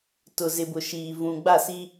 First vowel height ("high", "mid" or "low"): high